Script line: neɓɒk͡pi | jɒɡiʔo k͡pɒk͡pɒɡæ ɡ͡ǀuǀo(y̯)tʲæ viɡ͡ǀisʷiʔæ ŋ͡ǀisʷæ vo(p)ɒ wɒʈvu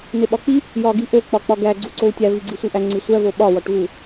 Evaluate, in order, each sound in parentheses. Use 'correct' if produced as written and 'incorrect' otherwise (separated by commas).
incorrect, incorrect